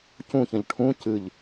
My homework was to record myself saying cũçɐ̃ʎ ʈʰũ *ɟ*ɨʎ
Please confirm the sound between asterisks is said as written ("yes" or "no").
no